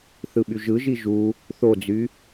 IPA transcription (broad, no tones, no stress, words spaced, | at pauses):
θɯɓyʒɯʒi ʒu | θod͡zy